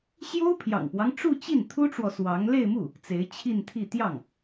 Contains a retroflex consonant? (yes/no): yes